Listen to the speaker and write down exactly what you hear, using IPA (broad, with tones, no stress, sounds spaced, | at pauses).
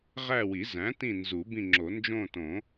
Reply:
ʁ æ˦˨ w i˨˩˦ z æ̃˩˥ t ĩ˦˨ n z u˨˩˦ b ĩ˦˨ ŋ͡ǁ o˨˩˦ n d͡ʒ õ˦˨ t õ˨˩˦